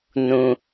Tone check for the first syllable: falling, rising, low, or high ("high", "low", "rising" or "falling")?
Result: low